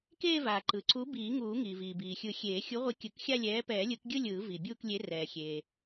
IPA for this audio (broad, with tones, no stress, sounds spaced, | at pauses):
k eː˥˧ v aː˩ ǃ ɯ˩ ǀ u˨˥ b iː˨˩˦ ŋ uː˨˩˦ ŋ iː˩ v iː˩ b iː˩ xʲ ɯ˨˩˦ xʲ eː˨˩˦ xʲ u˨˥ ʁʷ i˨˥ kʲ ɯ˨˩˦ k xʲ a˥˧ lʲ ɛː˨˥ p ɛː˨˩˦ lʲ ɯ˨˩˦ k ɡʲ ɯ˥˧ lʲ ɯː˨˩˦ v i˩ bʲ uː˥˧ k lʲ e˨˥ r ɛː˩ xʲ eː˩